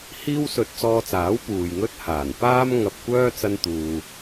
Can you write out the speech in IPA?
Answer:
hiː˥wsɵ˧t̚t͡sɔː˧t͡saː˨˥w puː˨jŋɵ˥t̚haː˨˩n paː˥m ŋɐ˧p̚kʷœː˥ t͡sɐ˥nt̪uː˧

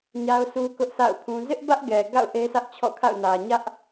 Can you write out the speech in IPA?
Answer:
ɲa˦ʊ̯su˦kʊ˦ʔsa̰˦˨ʊ̯ pʰũ˦ zɪ˦ʔbä˦ʔɡɛ˨ ɡa̰˦˨ʊ̯ ʔe˦sä˦ʔt͡ɕʰɔ̰˦˨kʰa̰˦˨ʊ̯ nä˨ ɲä˦ʔ

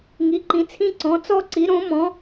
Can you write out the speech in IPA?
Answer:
ŋi˧˥ǃĩ˧˥t͡sʰĩ˥ ǀɔ̃˧˥t͡sɔ˥ǀi˧˥ ɾõ˧˥mɔ̃˧˥

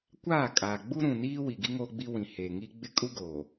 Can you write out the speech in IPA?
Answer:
kʷaː˦˨kʼaː˨ ɡ͡bu˦ɾũ˨niː˦ wi˨ɡi˦ ŋoː˦ɡ͡bi˦wĩ˨ heː˨ŋi˦ ɡ͡bɪ˦kʼu˦ ɡoː˨

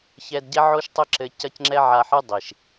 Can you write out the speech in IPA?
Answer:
çɛ˧dɟɛ˦ ʕo˦ʃtˤɘ˦ǁɘ˧ cɐ˦cŋ͡ǁɛ˦ʕa˧ħɨ˦ dˤi˨ʃ

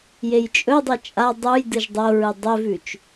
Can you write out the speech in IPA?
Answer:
jejt͡ʃʼɵdˤi t͡ʃʼa dˤuj dɨʒdˤoɹɨ dˤɵvʉt͡ʃ

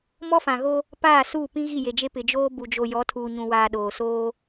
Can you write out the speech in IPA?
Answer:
mɔ˦fã˨ɣo˦ | paː˦˨suː˦˨pĩ˦ ɣi˦˨je˨d͡ʒe˦ pɪ˨d͡ʒoː˦ bu˨d͡ʒo˨jɔ˨˦ tʰuː˨ɲũ˨waː˨ ɗoː˨soː˦

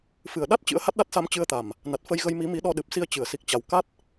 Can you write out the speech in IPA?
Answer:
fɨ˨˩ə̯ɗa˦˥t̚ t͡ɕɨ̰˧˥ə̯ha˦˥t̚ɗa˦˥t̚sa˧m t͡ɕɨ˧ə̯t̪a˨˩m | na˨˩t̚fə˧jɣə˧j mi˨˦mi˨˦ɗɔ˧ɗɨ˨˩p̚ si˧ə̯t͡ɕɨ˨˩ə̯si˨˩k̚t͡ɕa˨˩w ka˦˥t̚

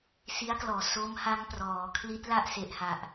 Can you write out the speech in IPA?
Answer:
si˦˥a̯klɔː˩˦ so˦˥mha˦˥ŋ prɔː˩˦ kʰli˦˥t̚la˥˩ʔse˨˩ʔha˨˩ʔ

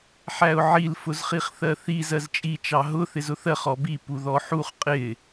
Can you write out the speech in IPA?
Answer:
ħæʊ̯ʕil fʊzχiχθɜθiz ɜzt͡ʃʼi t͡ʃɑɦʊ θɪzʊθɜχ ɔbi puðɔħuχ qʼɪ

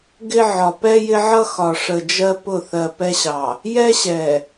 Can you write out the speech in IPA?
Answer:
ɡɪ˦ʕɒ˨ pɛ˦jɪ˦ʕʌ˦ xɒ˨ʂə˨d͡ʒɜ˦ pʊ˦˨θɜ˨pɛ˦ɕɑ˨ | jɛ˦ɕɛ˨

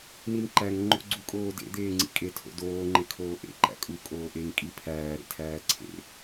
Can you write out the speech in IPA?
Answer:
ninǃæŋ ŋ͡ǃo̰ɡ͡ǀukʼoːdḛ d̪eːŋ͡ǀḭkʼe tʰo̰doː ŋ͡ǃekʰoːʔḛ ǃæ̰kʼu kʼoːʔeŋ kʼipʰæː ɾḛtʰæːǀʰḛ

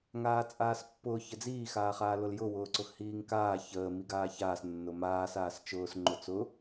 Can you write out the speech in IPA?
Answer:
ŋaːt͡sʼaːspːʊː çəd͡ziː xaːχaːlʊljʊ wʊːǀʊxhiːŋkaː çəː miɡaːçaːs nːʊmaːs aːst͡ʃʊːs ŋ͡ǃʊt͡sʊ

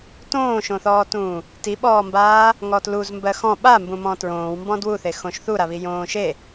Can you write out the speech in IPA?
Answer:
tõːʃõθɔːtũː | tiɓɔːmbaː | ŋɔtluz mbɜxɔ̃ ɓambũ mɔ̃tɹõːwmbɔ̃ dwuθe xõʃθuɾaβi jõːʃe

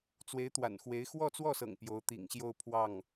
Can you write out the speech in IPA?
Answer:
t͡swe˧˥ɪ̯t̪wa̰˨˩nxwe˧˥ɪ̯ xwɔ˥˧t͡swɔ˥˩sɤ̰˨˩ŋ pjo˧˥ʊ̯t̪ḭ˨˩ŋɕjo˥˧ʊ̯ pʰwɑ˥˩ŋ

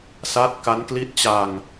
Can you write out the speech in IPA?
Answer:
sa˦˥t̚ ka˦˥nkli˦˥t̚t͡ɕa˧ŋ

